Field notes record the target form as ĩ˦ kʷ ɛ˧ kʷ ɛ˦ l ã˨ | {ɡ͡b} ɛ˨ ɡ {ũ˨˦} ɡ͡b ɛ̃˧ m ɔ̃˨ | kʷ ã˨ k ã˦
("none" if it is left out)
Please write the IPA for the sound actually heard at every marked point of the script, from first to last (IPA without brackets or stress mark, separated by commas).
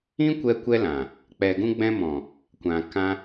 k͡p, ũ˧